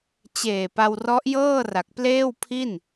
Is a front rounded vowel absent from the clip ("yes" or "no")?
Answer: yes